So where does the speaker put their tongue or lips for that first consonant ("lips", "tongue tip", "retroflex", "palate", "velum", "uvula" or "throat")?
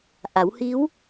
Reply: throat